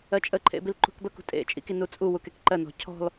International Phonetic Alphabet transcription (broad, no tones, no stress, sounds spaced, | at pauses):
ɜ t͡ʃʼ ə ǃʰ ḛ b i l ǃ ṳ k b ə k ṳ tʼ ḛ t͡ʃʼ ḭ k i n u t͡sʼ u w u k e k ǃ ɜ n ɔ̤ cʰ ɔ̤ l